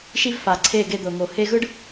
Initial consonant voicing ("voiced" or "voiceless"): voiceless